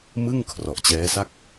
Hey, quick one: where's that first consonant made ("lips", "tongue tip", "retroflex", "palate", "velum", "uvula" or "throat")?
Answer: lips